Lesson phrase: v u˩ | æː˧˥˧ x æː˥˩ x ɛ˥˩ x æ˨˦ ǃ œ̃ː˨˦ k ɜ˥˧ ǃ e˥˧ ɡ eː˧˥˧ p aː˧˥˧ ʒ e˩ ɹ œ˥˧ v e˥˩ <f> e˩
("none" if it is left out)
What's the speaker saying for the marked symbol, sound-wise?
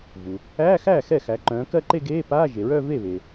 β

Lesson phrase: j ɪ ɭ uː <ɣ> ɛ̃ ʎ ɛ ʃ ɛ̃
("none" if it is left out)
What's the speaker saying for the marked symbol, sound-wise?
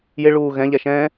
ɣ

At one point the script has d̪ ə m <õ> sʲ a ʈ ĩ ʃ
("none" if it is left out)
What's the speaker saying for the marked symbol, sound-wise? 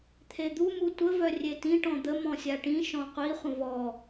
ɔ̃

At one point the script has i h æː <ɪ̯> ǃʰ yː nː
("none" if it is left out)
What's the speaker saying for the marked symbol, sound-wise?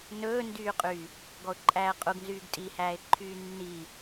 ɪ̯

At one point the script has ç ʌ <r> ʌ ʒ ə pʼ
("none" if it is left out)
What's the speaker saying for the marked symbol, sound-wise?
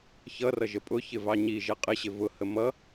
r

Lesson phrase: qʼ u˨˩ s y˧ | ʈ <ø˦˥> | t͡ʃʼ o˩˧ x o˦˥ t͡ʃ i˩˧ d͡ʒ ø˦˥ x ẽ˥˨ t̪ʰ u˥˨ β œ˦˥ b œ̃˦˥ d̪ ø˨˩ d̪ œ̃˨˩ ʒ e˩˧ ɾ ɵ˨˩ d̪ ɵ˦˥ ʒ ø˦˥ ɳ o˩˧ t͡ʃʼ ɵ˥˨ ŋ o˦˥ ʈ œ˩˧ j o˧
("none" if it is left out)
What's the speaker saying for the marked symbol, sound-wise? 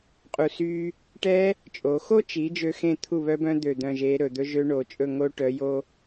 ɛ˦˥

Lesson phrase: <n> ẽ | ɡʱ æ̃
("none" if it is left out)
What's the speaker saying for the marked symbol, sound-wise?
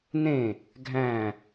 n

